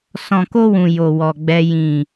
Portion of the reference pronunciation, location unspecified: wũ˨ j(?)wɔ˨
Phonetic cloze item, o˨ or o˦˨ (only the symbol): o˨